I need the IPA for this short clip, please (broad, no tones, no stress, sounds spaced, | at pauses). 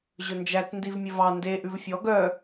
ʑ ɵ n d͡ʒ æ t n d i v mʲ ɵ v ɑ n d e ʔ ʉ v fʲ ɔ ɡ œ